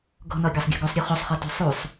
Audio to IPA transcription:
ɡ ɔ̤ n ɒ ɡʲ ɒ sˤ ɡʲ ɔ̤ ɡ o sˤ ɾʲ o χ o sˤ χ ɔ t o̤ sˤ u sˤ

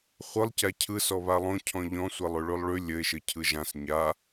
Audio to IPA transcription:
χʷ ɯ lˠ c a cʰ ɯ s ɔ β a lˠ õ cʰ ɔ̃ ʎ ɔ̃ sʷ e lˠ ʉ ɭ ʉ lˠ ɭ ʉ lʲ ɘ ɪ̯ ʃ ɘ cʰ ɯ ʒ ã s ɲ a

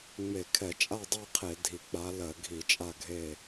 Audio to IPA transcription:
ŋ͡m e˧˩˧ kʰ ɛ˧˩˧ t͡ʃʼ a˥˨ dˤ e˥˨ qʰ e˧˩˧ dʱ i˨˩ k͡p a˨˦ l ɜ˧˩˧ ɡʱ i˧˩˧ t͡ʃʼ a˥˨ ɡʱ e˥˨

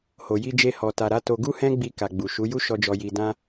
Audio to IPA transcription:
h o˨ j i˧ d͡ʒ e˧ h ɔ˨ t a˨ ɾ a˨˦ t o˦ ɡ u˦ h ɛ̃˦ ɡ͡b i˧ k a˨ ɡ͡b u˨ ʃ u˨˦ j u˦ ʃ ɔ˧ d͡ʒ ɔ˧ j i˧ d ã˧

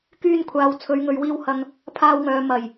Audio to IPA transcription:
k yː˧ n kʷʰ aː˨ w t͡sʰ ɵ˨˧ ɥ ŋ ɵ˨ ɥ w iː˧ w h ɐ˧ ŋ | pʰ aː˧ w ŋ œː˨ m ɐ˨˩ j

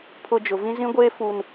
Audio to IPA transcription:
pʰ ʊ˨ d͡ʒ ʊ˨ v ĩ˦ z ĩ˦ ɡʷ eː˦ f u˨ n

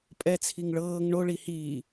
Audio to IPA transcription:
pʼ ɛ t͡sʰ i ŋ ɭ ɤː ŋ ɳ o ɭ i h iː

